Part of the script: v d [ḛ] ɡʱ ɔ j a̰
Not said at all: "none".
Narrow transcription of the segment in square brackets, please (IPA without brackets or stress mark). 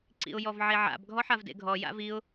ḛ